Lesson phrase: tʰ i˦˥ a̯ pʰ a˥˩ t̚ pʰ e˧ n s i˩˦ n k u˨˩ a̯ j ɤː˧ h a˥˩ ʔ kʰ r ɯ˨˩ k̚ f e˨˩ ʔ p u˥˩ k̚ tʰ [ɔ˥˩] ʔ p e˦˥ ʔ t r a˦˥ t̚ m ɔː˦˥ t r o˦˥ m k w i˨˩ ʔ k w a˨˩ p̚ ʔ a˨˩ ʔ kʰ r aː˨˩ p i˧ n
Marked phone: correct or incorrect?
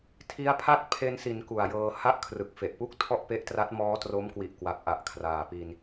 correct